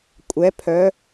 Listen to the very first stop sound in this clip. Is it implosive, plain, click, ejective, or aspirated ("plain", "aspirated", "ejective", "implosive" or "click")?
ejective